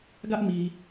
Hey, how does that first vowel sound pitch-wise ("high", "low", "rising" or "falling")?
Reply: high